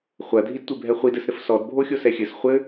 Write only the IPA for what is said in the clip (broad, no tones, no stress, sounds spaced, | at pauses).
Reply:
χʷ ɐ dʱ i d tʷ e bʱ ɛ χʷ i d ɘ s ɾ ɘ f s ɔ d bʱ o xʲ o s ɛ xʲ ɘ s χʷ ɘ